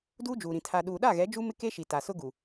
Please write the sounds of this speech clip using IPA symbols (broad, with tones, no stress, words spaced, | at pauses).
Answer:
duː˦d͡ʒuː˨ɾĩ˨ tʰa˨ɗuː˨ɗa˦˨ɣɛ˨˦ d͡ʒu˦mɪ˦ke˦ʃi˨ ta˨sʊ˦ɡu˨